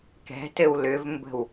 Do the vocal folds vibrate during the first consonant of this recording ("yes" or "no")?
no